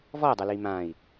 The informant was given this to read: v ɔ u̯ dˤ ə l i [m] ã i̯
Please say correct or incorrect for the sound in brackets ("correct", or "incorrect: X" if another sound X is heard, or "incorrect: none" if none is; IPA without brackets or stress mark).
correct